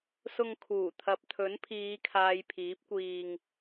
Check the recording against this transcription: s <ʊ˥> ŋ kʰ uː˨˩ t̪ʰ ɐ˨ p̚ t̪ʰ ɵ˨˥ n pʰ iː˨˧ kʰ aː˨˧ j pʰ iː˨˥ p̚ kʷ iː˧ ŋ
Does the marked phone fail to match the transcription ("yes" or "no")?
yes